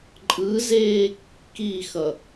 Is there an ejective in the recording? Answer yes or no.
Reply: yes